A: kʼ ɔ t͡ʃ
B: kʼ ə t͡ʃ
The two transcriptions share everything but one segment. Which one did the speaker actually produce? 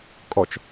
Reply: A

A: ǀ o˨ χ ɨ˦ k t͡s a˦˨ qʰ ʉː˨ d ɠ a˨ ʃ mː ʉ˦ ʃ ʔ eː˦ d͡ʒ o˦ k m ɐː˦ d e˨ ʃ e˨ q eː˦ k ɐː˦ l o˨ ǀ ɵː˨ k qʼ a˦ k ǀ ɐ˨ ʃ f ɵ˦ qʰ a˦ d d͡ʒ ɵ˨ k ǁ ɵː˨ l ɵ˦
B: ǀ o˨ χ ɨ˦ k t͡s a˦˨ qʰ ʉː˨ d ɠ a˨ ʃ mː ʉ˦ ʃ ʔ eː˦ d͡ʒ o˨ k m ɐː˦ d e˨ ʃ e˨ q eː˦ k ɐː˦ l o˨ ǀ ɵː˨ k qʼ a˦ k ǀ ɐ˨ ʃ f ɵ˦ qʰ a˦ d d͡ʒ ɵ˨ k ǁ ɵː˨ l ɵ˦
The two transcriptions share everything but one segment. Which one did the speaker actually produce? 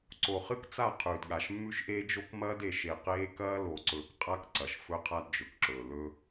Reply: A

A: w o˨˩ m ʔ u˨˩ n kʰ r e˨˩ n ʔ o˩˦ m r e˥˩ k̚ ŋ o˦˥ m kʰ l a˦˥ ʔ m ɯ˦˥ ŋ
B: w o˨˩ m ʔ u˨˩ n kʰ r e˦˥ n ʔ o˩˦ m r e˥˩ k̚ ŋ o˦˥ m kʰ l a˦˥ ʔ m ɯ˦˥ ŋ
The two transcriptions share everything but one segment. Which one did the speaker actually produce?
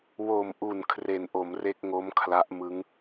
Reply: A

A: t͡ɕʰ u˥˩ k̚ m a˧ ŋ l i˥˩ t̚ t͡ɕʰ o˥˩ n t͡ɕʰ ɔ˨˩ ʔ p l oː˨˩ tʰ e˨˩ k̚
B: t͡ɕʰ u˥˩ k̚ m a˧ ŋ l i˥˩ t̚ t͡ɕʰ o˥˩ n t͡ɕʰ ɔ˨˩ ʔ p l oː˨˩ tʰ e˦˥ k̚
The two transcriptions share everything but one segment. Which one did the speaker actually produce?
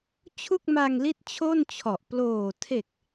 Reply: A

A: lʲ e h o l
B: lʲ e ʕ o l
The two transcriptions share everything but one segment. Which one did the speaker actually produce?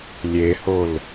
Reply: A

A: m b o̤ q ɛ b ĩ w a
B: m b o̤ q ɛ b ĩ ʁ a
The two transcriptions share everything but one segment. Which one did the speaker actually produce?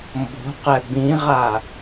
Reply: B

